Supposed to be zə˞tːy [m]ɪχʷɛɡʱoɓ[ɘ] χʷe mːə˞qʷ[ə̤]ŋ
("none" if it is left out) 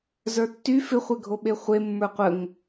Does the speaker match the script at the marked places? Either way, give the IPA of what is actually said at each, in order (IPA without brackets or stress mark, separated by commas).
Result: f, e, ə